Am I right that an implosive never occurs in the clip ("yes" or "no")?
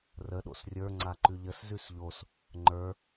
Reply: no